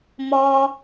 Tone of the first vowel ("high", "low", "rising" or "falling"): high